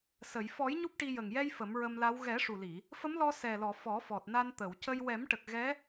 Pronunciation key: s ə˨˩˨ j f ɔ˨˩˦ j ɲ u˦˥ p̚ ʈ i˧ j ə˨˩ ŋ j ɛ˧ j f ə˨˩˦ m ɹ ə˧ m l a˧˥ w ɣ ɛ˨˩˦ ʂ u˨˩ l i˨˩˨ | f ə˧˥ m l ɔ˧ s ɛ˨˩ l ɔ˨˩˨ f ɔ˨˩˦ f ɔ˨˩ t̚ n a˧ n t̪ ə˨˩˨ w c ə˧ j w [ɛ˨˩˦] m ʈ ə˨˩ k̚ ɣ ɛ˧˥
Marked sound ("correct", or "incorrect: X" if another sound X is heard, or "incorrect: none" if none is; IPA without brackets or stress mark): correct